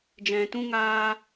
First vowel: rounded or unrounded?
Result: unrounded